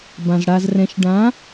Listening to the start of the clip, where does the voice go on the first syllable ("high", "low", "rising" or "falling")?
low